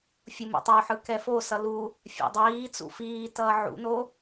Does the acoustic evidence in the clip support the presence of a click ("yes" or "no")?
no